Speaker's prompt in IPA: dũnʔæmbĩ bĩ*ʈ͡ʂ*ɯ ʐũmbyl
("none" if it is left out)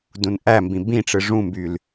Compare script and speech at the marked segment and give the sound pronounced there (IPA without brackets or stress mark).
ʈ͡ʂ